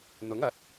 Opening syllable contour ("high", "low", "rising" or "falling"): rising